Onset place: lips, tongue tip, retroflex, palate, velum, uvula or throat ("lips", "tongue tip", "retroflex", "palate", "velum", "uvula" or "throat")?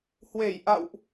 throat